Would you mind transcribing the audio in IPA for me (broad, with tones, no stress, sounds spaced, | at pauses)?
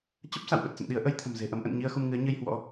t͡ɕ ə˦˥ p̚ s a̰˧˨ w ɓ ə˨˩ t̚ s ə̰˧˨ n ɗ i˨˦ ə̯ ʔ ə˨˦ j t̪ʰ ə̤˨˩ m z e̤˨˩ ʔ ə˨˦ m ʔ ə̰˧˨ n ɲ i˧ ə̯ x u˧ m ŋ ɨ˨˦ ə̯ ɲ ɨ˧ j h w ɔ̰˧˥